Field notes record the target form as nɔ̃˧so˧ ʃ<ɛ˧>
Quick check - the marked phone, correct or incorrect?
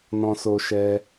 correct